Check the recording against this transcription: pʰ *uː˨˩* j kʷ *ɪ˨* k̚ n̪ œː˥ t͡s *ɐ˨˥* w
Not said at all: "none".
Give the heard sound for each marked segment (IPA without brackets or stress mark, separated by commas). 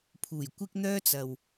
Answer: uː˨˩, ɪ˥, ɐ˨